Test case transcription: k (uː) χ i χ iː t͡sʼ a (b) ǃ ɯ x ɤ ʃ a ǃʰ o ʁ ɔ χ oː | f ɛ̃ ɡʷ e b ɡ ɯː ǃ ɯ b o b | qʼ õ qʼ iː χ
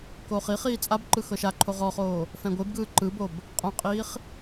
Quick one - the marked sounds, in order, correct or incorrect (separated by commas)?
incorrect, correct